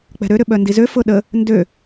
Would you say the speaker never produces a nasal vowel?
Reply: yes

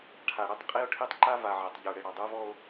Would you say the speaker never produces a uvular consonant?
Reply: no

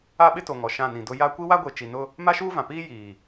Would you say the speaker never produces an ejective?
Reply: yes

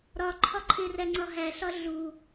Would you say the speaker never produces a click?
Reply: no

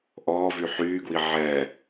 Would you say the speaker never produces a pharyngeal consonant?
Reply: no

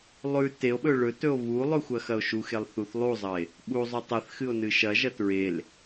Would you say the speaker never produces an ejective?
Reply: yes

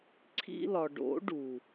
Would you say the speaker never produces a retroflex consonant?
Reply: no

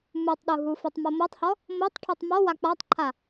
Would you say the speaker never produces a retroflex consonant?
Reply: no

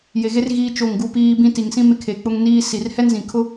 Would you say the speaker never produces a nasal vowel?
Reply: no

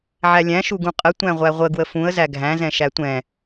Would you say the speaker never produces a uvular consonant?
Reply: no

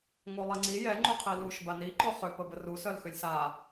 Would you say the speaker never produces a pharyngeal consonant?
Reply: yes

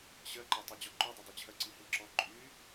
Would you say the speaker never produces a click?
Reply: no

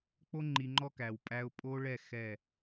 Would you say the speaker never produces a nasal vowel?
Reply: yes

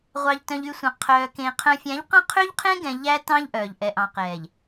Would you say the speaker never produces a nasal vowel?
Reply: no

